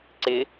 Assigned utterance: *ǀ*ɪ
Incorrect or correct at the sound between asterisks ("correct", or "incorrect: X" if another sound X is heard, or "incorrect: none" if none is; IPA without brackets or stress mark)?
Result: correct